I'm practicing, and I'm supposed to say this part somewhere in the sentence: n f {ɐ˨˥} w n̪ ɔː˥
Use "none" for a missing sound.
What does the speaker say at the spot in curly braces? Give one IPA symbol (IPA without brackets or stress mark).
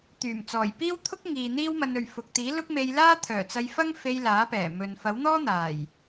ɐ˨˥